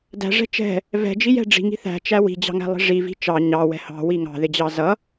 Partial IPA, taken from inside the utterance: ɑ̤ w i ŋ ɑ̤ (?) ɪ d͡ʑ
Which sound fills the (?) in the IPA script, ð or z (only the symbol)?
ð